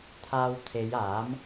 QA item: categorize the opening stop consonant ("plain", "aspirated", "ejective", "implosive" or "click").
aspirated